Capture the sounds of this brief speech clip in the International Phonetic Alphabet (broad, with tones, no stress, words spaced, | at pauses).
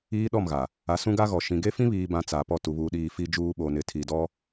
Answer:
iː˦ɗɔ˦˨mɣa˨ | a˨˦sũ˦ɡa˦ɣɔ˨ ʃĩ˨ ɡe˦fĩ˦βiː˨bã˨ t͡sa˨pɔ˦˨ tu˨βuː˨ɗiː˨ fi˨d͡ʒuː˨ ɓo˨nɪ˨ tʰi˨dɔ˦